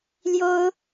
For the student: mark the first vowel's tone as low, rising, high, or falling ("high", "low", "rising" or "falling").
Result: high